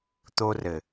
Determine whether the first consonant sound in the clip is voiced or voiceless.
voiceless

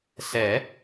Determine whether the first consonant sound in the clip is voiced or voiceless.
voiceless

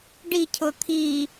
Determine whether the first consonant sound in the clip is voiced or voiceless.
voiced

